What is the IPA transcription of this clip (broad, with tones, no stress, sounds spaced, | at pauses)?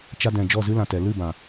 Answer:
t͡ʃ a˦ d ɛ̃˧ d͡ʒ ɔ˦˨ z ɨ˦ l ã˨ t ɛ˨ l ɨ˦˨ b ã˨